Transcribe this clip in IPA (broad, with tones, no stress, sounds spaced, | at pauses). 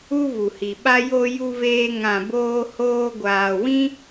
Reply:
u˦ v u˨ h i˨ ɓ a˦ j o˧ j u˧ v eː˧ ŋ ã˨ b oː˧ h oː˧ ɡʷ aː˨ w ĩ˦